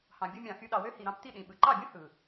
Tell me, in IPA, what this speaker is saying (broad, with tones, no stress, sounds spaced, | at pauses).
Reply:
h ɑ̃˨ bʲ ɯ˧ mʲ ɑ̃˨ x y˧ ɗ ɑ˨ w ø˦ h i˨ ɾ ɑ̃˧ p t i˦˨ ɗ ĩ˨ ɓ ɯ˨ ǃ ɑ˦˨ bʲ ũ˦ h ɯ˨